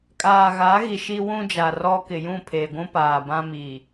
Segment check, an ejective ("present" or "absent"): present